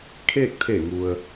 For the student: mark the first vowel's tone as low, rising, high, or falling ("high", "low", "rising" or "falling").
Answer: falling